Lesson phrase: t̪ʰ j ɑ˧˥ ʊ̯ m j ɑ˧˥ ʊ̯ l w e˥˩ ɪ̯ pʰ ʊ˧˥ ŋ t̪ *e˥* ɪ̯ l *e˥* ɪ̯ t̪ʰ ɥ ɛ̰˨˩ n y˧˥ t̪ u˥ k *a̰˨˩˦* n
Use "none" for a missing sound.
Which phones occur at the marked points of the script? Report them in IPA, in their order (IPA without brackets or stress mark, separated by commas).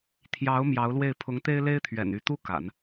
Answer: e˥, e˥, a̰˨˩˦